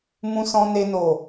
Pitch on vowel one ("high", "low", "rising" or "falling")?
high